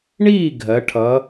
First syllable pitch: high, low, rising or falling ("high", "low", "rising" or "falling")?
falling